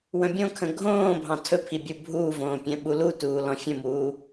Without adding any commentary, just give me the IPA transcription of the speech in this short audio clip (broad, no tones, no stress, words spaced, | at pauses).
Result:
wə̃bʲõkʰə̃ ɡʱõː bʱɑ̃tʰɵpʰi bʲubʱuːvõː pʲɛ̃ɓulutuː lɔ̃fʲə̃muː